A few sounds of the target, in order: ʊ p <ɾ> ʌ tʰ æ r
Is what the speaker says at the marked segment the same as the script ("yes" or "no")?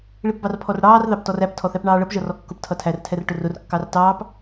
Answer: no